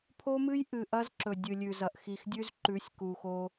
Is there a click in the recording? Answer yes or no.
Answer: yes